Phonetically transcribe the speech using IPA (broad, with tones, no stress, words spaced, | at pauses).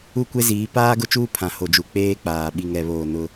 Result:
u˦˨kʷe˦ziː˨˦ paː˦ɡʊ˦t͡ʃuː˦ pʰã˨ho˨d͡ʒu˨ k͡peː˦k͡paː˨ ɓi˨ŋɛ˨βoː˨ nʊ˦